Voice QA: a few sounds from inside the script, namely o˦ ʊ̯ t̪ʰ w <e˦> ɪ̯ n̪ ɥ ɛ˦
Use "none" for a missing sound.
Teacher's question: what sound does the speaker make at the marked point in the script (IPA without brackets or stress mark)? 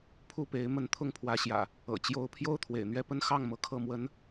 ḛ˨˩